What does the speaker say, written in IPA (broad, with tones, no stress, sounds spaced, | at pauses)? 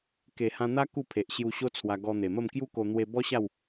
k e˨˩ h ã˧ n̪ a˦ k u˥˧ pʰ e˨ ʔ ɕ j u˧ ɕ o˦ t͡sʰ w a˧ ɡ ɔ˧ n̪ e˨˩ m ə˥˧ m k j u˦ k o˧ n̪ w e˧ b ɔ˦ ɕ a˥˧ w